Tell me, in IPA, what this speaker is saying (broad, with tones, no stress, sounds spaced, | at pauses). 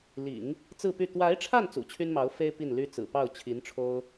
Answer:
l ḭ˨˩˦ ŋ | t͡s ɹ̩˥˧ p y˥˩ t̪ w a˧˥ ɪ̯ ʈ͡ʂʰ a˥˩ n t͡s ṵ˨˩ t͡ɕʰ y˥ n m ɑ˧˥ ʊ̯ f e˥ ɪ̯ p i˥˩ n l y˥ t͡s ɹ̩˨˩ p ɑ˥˩ ʊ̯ t͡ɕʰ i˧˥ n ʈ͡ʂʰ o˥ ʊ̯